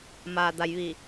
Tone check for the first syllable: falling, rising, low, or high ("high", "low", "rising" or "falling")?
low